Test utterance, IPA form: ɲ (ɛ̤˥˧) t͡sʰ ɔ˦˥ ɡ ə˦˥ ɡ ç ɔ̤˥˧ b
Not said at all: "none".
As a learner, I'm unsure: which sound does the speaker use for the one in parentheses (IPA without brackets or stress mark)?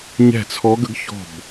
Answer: ɛ̤˥˧